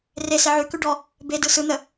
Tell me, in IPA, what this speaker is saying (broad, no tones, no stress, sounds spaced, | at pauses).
r e s e ʕ ʉ k ʉ ɖ ɔ | b e d ɯ s ɯ n̪ ə